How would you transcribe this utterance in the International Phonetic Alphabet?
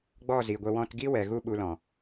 ɡ͡b ɔ˦˨ z i˨ ɡʷ ə˧ w ɔ̃˧ t ɡ i˦ w ɛ˨ ɣ u˦ ɓ u˧ l ɔ̃˨

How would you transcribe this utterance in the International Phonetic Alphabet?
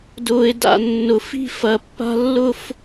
d ʊː˧ ɪ̯ d a̰˥˧ nː ʊ˧ f i̤˥˧ f ɐ˧ pː a̤˥ lː ʊ˥ f

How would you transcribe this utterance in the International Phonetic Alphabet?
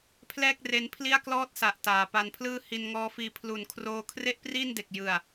pʰ l ɛː˥˩ k̚ r e˧ n pʰ l i˥˩ a̯ k l ɔː˥˩ t̚ s a˨˩ ʔ t aː˩˦ p a˧ n pʰ l ɯː˥˩ h i˧ n ŋ ɔː˦˥ f iː˧ pʰ l u˨˩ n kʰ r oː˧ kʰ r e˥˩ ʔ p r iː˥˩ n d e˨˩ k̚ j ɯ˨˩ a̯

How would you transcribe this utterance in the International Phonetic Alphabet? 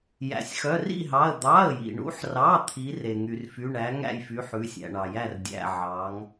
j æ̰˩ sʲ x œ˩˧˩ r ḭ˥˩ ɦ ɑ˩˧˩ ə̯ d̪ ɑ˩˧˩ ə̯ j ḭ˩ ɳ ṵ˨˦ ħ r ɑ˩˧˩ t̪ʰ i˨˦ r e˩ ŋ y˩ r f y˩˧˩ ɳ æ˨˦ ŋ æ̰˥˩ j f y˨˦ ħ ʉ˩˧˩ sʲ æ̰˩ ɳ ɑ˩ j æ˥˩ r dʲ æ̰˩˧˩ ʕ ɑ˨˦ ŋ

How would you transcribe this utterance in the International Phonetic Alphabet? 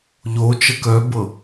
ʎ o t͡ʃ ə k œ b ɤ

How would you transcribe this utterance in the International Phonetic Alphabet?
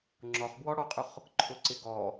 ŋ͡ǁ ɔ χ b w ɔ ɽ ɔ qʼ ʊ χ | ǃʰ ʊ ǀ ɪ ɡ ɔ

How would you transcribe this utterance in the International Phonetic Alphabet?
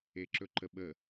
e ǁ ɵ ǃ ə ɓ ə

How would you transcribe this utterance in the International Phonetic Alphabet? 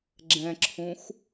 ɡ͡ǁ ɛ̃ ǁʰ ũ x

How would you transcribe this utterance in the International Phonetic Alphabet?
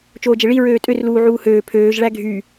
t͡ʃ oː d͡ʒ e ɭ i ɹ øː tʼ ø r l uː ʕ uː h øː pʰ øː ʒ ɭ æ ɡʱ y

